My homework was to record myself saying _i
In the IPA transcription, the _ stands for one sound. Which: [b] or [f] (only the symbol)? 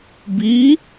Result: b